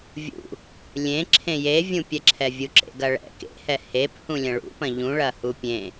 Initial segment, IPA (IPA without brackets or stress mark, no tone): vʲ